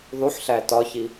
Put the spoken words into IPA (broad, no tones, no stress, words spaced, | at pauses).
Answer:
ðˤuħɬæ tɒçi